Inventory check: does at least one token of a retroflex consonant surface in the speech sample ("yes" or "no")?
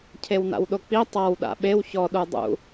no